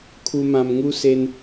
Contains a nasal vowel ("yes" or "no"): yes